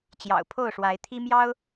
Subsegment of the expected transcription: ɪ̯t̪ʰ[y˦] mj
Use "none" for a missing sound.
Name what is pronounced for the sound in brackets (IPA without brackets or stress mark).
i˦